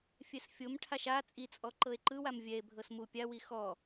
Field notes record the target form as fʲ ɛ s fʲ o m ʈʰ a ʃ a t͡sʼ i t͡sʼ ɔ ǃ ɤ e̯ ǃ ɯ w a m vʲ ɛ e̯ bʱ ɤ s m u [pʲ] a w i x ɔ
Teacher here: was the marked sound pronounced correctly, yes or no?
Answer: yes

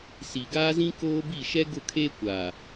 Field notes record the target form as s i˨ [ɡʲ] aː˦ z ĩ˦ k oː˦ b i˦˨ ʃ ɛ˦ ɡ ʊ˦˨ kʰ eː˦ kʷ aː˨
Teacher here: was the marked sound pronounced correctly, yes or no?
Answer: no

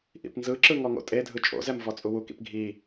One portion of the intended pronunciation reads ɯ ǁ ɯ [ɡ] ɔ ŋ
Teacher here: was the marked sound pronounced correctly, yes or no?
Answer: no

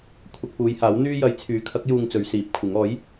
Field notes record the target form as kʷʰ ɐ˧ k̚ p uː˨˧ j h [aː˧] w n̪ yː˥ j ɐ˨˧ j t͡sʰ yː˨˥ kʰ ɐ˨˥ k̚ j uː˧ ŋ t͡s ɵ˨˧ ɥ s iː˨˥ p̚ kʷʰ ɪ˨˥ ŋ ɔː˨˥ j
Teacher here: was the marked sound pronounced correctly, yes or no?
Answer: no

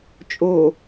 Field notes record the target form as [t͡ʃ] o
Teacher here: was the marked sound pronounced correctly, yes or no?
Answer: no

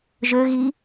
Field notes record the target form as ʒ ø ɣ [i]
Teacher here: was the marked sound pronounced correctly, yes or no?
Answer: yes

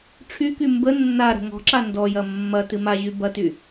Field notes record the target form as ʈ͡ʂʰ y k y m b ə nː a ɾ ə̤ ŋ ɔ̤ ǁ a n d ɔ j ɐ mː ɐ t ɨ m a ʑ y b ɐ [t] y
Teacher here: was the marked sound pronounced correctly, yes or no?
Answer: yes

